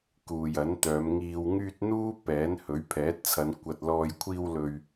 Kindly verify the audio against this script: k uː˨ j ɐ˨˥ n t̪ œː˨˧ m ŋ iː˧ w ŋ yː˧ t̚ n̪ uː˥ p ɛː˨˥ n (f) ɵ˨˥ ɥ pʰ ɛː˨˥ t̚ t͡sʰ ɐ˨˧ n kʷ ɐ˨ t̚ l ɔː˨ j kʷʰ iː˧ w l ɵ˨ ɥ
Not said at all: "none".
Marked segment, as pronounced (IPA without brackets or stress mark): h